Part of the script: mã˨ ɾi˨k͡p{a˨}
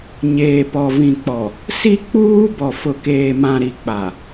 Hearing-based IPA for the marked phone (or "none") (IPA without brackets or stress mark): a˨